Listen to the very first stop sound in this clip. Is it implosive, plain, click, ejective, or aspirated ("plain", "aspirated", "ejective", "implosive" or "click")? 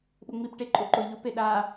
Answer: implosive